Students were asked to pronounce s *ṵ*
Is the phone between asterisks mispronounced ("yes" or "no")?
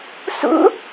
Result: no